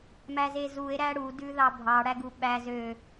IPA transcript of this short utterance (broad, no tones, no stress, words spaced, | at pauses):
mæzezue̯ ɾæɽu dʉðɑbʱɑ ɽæɡuɓæz ø